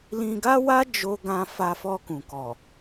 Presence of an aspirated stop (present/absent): absent